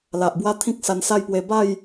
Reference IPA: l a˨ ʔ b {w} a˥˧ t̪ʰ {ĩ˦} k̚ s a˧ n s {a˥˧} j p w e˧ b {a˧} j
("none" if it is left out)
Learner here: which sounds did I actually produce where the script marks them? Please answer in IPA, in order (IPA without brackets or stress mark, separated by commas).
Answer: w, ĩ˦, a˥˧, a˥˧